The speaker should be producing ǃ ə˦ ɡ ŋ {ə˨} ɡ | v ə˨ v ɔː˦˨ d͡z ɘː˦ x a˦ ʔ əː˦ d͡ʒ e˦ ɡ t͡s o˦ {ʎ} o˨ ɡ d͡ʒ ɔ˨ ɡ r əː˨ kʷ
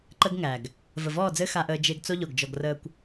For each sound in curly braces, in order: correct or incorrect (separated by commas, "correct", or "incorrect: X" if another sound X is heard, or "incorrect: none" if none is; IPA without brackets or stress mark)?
incorrect: æ˨, correct